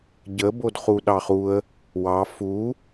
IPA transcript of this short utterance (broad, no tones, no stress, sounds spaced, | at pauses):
ɟ ə b o d χ u ɗ ɑ χ u ə̯ | w ɑ f u